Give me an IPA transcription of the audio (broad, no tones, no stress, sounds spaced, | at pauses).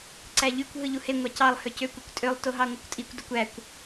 ǀ æ ʎ y kʷ ɦ ɯ ʎ u h e ŋʷ ɑ c ɑ lˠ h ø c ø kʷ y kʷ tʼ ø lˠ t o ɦ ɑ ŋʷ ɑ kʷ tʼ i kʷ d o kʷ æ kʷ